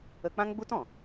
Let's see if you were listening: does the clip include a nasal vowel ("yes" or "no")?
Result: yes